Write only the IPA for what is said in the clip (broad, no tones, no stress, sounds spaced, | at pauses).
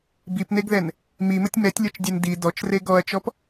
b i p n e ɡ ð ɛ n | m i m ə tʲ m ɛ tʲ lʲ ɔ t͡ʃ dʲ ɛ n d i d ɔ t͡ʃ r e ɡ ɔ ɐ̯ t͡ʃ ɔ p